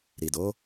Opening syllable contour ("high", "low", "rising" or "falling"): low